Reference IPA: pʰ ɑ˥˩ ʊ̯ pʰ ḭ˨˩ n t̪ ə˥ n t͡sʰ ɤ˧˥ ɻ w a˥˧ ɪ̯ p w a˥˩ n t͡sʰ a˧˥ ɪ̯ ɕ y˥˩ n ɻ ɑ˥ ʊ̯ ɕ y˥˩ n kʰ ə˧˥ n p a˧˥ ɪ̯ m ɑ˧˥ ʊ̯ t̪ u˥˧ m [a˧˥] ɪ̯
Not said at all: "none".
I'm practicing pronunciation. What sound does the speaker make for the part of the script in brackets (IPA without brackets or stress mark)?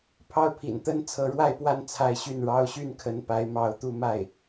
a˥˩